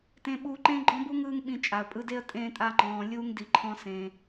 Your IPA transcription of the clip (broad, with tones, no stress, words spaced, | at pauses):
tẽ˧ɓuː˧ǃẽː˦ɡ͡ǃɔ̃˦ bu˦ŋ ɯː˦ŋɓĩ˧ t͡ʃʼa˨ə̯pʼɯ˧de˦ə̯ tʼẽː˧tʼa˧ ŋ͡ǃɔ̃ː˧ lʲuː˦ŋdi˧ǃʰɔ̃˦sẽ˧